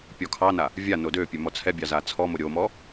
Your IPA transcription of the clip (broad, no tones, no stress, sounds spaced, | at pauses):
pʲ ɔ kʰ ɑ n a | vʲ a n o d ø pʲ ø m ɔ t͡sʰ ɛ bʲ ɑ z a t͡sʰ ɔ m o ɾʲ o m ɔ